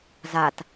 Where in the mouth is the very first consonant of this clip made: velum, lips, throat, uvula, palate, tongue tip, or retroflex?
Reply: tongue tip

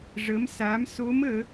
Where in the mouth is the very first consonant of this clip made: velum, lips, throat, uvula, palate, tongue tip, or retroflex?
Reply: retroflex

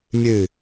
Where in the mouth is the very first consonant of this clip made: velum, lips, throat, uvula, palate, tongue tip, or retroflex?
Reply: lips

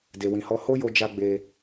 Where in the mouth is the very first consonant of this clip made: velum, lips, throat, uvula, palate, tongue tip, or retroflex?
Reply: tongue tip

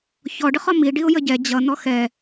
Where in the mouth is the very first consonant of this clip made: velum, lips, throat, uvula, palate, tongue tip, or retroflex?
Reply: palate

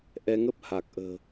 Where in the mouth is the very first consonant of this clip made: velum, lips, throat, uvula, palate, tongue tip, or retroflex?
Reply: throat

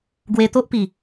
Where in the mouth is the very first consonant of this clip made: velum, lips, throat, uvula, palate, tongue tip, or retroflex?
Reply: velum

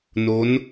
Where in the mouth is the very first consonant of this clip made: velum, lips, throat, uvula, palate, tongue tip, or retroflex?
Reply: tongue tip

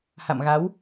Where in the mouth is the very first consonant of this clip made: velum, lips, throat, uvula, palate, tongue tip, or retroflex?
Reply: throat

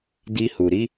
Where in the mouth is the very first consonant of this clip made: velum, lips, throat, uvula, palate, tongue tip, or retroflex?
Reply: tongue tip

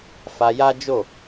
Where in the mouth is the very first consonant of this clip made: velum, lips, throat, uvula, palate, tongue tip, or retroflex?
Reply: lips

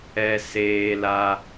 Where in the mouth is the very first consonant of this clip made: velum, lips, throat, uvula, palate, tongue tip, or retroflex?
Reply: tongue tip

